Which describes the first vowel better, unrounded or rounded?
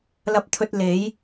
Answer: unrounded